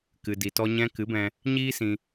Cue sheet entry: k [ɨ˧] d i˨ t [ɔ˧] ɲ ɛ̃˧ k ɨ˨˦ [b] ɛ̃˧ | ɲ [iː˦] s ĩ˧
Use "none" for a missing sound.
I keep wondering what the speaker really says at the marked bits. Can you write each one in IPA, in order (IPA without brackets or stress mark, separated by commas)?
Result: ɨ˨, ɔ˧, b, iː˦